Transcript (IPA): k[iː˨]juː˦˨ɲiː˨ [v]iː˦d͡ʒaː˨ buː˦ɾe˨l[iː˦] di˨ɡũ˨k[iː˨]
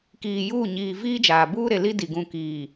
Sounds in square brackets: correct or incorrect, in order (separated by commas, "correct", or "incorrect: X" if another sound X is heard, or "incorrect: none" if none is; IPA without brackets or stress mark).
correct, correct, incorrect: i˦, correct